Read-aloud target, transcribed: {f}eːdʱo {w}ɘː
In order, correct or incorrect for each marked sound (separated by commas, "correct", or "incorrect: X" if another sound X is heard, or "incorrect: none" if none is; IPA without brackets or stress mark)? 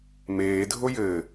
incorrect: m, incorrect: j